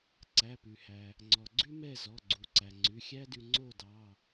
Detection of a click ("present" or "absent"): present